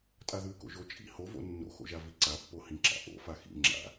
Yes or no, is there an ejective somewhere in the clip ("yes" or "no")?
yes